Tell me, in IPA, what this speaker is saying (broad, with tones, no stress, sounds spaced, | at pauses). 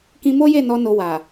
k ĩ˧ m o˦ j e˦˨ n ɔ˧ n o˧ w a˨